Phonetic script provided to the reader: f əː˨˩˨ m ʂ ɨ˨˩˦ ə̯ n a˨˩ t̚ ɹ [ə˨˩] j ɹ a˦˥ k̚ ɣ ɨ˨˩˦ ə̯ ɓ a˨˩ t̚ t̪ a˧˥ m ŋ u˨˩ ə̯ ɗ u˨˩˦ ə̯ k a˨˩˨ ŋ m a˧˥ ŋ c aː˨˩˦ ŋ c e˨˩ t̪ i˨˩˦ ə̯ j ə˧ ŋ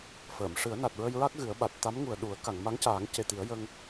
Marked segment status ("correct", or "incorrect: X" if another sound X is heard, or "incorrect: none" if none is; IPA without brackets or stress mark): incorrect: ə˧